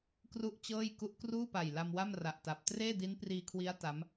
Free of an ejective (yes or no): yes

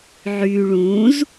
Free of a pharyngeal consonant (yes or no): no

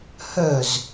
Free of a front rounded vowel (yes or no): no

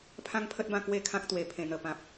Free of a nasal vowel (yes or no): no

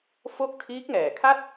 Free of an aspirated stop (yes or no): no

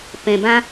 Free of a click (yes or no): yes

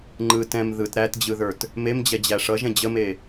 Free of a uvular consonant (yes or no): yes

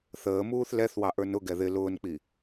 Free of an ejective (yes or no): yes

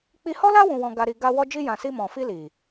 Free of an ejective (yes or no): yes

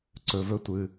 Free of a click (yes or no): no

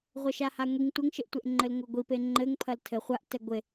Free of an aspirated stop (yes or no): no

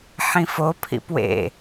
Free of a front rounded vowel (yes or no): yes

